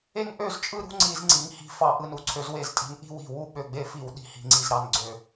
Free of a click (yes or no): no